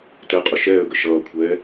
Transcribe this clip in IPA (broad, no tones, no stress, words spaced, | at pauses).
tɛqʼʊ ʃɛːə̯ɡə ʃʌːkʷʰɛː